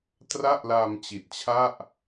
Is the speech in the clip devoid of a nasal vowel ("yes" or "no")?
yes